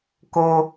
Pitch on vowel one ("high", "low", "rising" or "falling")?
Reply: high